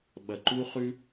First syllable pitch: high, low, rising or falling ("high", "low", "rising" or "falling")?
low